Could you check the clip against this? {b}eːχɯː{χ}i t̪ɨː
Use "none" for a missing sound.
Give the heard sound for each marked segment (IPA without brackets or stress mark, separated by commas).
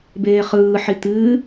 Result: b, ħ